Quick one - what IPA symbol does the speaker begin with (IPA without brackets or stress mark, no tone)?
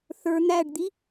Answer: θ